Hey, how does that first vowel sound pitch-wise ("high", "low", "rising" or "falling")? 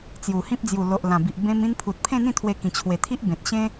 low